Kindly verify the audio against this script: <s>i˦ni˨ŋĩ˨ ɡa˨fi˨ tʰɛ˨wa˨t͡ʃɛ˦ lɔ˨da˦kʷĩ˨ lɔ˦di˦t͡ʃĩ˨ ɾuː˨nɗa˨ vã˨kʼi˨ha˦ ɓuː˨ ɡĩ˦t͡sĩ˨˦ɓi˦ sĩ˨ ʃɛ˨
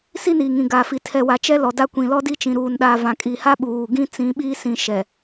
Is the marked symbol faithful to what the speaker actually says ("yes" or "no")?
yes